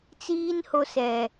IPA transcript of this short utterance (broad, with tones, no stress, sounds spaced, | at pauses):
t͡s iː˦ n h o˦ s ɛ˨